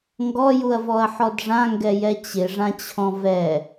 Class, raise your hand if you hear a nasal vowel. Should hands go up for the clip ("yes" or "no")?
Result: yes